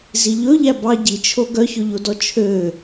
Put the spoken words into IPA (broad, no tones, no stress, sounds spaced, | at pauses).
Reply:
z i ʎ ɵ ʎ æ b ɑ ɟ i t͡ʃʰ o ɡ œ ç ɵ ʎ o d ɔ t͡ʃʰ ø